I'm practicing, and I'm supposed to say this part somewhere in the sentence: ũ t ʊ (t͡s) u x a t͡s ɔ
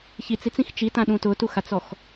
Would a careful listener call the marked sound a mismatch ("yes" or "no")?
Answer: yes